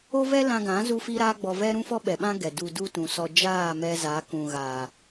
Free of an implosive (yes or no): no